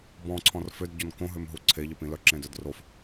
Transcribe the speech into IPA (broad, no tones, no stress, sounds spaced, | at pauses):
b ɔ̃ ǀʰ ɔ̃ r f ʏ d ɟ ɔ n k õ ɦ ø m ɦ u ǀʰ e ʎ ə p ĩ l œ ǁ ẽ d œ d r o f